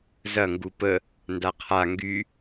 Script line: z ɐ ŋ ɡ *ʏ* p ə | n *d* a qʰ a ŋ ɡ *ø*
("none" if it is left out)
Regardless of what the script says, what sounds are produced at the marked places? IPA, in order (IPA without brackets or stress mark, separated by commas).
u, d, y